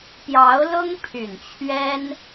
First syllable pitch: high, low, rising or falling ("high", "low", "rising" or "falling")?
rising